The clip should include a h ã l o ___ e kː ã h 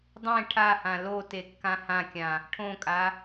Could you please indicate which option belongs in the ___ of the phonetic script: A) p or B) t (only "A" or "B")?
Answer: B